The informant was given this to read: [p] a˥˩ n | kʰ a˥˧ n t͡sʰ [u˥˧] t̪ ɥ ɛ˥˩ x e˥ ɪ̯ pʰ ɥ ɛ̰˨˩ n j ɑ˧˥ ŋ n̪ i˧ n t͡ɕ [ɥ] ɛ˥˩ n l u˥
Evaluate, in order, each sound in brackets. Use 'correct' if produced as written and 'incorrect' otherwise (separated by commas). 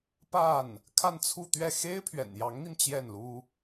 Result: correct, correct, incorrect